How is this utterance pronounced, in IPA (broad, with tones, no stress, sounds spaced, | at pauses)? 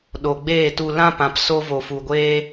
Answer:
ɗ o˨ ɡ͡b eː˦˨ t u˧ l ã˦ p ã˨ p s o˧ v o˨ f u˨ ɡʷ eː˦